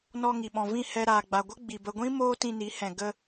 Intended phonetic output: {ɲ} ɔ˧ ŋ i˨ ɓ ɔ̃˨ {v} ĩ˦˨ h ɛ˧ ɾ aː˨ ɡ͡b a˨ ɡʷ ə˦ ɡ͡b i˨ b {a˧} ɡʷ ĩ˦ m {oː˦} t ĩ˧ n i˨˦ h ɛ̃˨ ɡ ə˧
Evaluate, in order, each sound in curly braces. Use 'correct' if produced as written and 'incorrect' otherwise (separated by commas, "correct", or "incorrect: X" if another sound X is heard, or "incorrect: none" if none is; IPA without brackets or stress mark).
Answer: incorrect: n, correct, incorrect: ə˧, correct